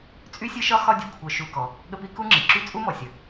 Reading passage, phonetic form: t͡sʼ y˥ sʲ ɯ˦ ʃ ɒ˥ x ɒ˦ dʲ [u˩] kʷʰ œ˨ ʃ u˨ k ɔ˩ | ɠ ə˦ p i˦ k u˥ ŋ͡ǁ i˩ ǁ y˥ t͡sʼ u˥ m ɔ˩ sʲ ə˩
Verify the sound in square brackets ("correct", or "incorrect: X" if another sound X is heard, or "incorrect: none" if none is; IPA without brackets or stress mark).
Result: correct